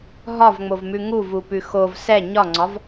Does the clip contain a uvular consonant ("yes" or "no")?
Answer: no